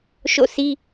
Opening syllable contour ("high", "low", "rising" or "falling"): falling